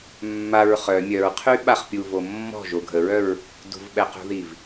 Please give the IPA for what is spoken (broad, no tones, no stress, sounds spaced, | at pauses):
mː a ɹ χ œ mʲ œ ɹ qʰ y ɓ a χ pʲ u v o mː ɔ̤ ʒ o ɡʱ ə ɹ œ ɹ | d ṳ v ɓ ɛ q ṳ ð i v